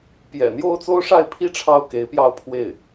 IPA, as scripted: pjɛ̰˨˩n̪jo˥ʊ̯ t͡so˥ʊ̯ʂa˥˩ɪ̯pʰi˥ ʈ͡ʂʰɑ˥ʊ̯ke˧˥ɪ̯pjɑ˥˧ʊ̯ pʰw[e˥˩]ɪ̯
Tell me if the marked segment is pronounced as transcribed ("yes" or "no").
yes